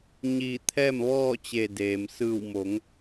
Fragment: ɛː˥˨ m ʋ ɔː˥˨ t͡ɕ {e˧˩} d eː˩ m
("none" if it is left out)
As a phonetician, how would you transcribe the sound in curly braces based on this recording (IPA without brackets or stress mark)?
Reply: e˧˩